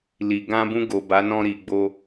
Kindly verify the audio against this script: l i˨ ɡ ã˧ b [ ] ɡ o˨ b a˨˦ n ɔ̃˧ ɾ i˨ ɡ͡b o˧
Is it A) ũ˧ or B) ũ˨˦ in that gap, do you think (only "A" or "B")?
A